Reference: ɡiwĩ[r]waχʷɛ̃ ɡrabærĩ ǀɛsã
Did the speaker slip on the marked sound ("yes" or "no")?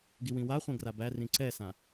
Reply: yes